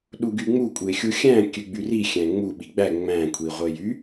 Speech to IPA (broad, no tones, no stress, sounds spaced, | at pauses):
ɗ u ɡ y ŋ͡m u kʷʼ e xʲ u xʲ æ̃ kʲ ø ɡ͡b y r i xʲ æ̃ ŋ͡m u ɓ i ɡ͡b æ ŋ͡m æ̃ kʷʰ i ʁʷ e j y